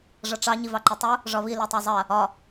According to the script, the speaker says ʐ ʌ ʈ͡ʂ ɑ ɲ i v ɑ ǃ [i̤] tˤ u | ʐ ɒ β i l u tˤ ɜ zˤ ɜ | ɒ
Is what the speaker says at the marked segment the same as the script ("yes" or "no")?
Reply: no